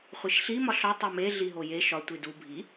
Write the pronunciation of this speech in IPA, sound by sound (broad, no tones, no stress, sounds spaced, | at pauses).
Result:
χʷ i ʃ ɬ i m ɒ ɬ ɒ tˤ o m e ɮ i ɦ o j e ʃ ɒ tʷ i d u bʱ i